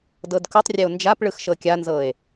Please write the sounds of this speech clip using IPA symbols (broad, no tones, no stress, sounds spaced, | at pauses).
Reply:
d ɤ d k u tˤ rʲ e o̯ n d͡ʒ a p ɭ ɯ x ʃ ɤ kʲ a n z ɤ e̯